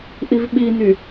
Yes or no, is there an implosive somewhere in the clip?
yes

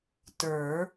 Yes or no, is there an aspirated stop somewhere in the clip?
no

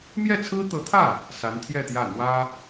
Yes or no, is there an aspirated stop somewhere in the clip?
yes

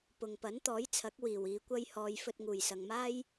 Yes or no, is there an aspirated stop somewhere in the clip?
yes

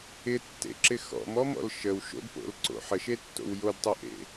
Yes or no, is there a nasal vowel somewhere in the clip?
no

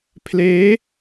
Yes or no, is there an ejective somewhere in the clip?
no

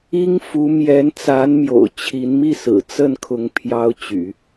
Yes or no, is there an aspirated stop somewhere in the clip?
yes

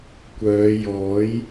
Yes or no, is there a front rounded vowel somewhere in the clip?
yes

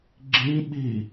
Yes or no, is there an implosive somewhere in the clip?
yes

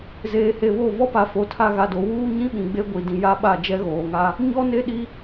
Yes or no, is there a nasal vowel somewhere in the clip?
yes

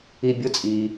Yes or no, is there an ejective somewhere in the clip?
yes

